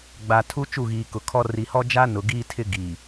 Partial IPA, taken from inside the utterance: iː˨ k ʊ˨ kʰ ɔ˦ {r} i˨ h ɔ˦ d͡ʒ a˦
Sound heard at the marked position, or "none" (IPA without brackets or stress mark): r